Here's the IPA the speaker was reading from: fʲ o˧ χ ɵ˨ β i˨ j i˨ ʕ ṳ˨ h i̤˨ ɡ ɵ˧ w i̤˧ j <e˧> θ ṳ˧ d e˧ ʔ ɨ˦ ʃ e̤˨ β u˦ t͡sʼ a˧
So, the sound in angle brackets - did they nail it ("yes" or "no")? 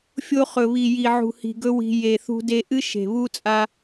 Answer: no